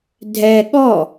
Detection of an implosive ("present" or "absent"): present